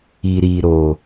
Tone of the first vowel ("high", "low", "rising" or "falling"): low